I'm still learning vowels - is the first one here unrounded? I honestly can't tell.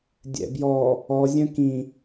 yes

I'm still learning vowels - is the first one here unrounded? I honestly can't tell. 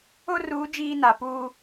no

